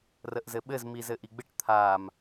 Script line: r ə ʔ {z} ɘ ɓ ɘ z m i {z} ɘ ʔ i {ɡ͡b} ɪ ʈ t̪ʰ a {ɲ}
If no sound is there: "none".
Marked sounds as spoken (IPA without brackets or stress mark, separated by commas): z, z, ɡ͡b, m